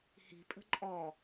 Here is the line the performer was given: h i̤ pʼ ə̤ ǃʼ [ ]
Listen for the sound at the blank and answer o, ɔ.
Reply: ɔ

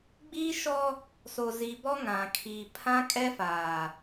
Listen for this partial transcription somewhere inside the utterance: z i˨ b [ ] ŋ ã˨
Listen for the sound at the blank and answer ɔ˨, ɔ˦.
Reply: ɔ˦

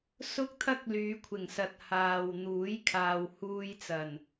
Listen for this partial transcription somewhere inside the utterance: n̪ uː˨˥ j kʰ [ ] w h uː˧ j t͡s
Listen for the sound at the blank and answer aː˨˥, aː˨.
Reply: aː˨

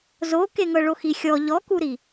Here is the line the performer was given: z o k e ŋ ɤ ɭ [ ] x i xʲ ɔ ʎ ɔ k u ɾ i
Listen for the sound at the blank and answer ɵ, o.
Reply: o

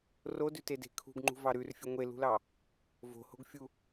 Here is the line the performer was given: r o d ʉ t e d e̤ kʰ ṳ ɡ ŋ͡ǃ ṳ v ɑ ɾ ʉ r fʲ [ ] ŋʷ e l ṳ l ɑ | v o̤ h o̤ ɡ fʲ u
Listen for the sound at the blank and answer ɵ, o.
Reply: ɵ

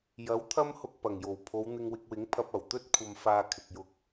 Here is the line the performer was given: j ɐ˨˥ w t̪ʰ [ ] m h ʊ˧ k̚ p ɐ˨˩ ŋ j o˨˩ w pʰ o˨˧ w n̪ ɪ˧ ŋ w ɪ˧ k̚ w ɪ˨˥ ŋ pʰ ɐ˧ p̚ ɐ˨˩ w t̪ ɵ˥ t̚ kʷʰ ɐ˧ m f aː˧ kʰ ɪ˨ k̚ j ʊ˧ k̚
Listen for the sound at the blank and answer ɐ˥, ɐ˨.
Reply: ɐ˥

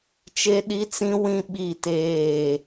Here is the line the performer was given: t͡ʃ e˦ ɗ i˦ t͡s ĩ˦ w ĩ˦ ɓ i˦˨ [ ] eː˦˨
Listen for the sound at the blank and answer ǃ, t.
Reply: t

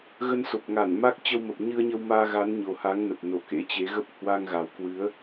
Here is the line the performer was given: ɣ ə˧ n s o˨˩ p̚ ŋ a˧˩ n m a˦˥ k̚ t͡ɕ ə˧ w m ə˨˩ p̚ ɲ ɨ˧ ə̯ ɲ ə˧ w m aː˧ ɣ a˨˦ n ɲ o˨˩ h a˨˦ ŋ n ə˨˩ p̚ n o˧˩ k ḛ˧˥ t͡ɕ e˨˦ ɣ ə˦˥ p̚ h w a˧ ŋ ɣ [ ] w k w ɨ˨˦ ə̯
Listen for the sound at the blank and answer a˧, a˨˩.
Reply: a˨˩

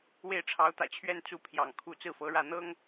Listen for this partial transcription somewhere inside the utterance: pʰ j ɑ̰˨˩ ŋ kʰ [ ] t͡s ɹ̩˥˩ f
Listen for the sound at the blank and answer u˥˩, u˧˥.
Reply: u˧˥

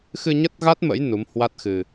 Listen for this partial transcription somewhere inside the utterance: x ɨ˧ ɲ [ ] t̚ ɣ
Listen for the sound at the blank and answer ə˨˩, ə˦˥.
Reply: ə˦˥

